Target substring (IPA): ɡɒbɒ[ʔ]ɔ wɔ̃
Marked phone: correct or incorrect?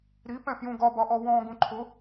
correct